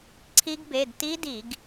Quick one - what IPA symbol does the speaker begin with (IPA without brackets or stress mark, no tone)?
ǀʰ